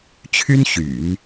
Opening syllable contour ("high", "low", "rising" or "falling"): high